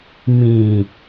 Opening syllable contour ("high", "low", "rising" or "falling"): low